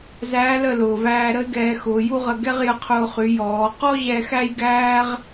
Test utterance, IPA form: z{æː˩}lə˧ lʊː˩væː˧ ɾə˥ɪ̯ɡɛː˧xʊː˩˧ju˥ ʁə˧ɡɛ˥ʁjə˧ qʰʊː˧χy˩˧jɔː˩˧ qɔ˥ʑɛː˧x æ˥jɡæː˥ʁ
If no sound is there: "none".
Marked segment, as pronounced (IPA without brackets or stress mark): æː˧˥